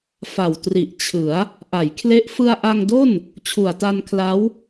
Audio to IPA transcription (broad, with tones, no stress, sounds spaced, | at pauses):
f a˨˩ w t r i˨˩ ʔ t͡ɕʰ ɯ˩˦ a̯ | ʔ a˩˦ j kʰ l e˦˥ ʔ f ɯ˧ a̯ ʔ a˧ ŋ d o˥˩ n | t͡ɕʰ u˨˩ a̯ t a˧ n kʰ l a˦˥ w